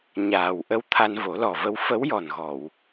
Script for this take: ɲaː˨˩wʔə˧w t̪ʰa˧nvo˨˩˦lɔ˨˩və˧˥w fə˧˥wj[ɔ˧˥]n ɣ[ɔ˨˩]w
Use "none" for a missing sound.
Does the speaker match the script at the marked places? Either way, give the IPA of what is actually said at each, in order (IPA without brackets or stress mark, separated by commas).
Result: ɔ˨˩, ɔ˨˩˨